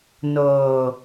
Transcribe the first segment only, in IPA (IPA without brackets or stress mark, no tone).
n